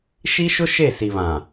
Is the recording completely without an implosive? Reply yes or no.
yes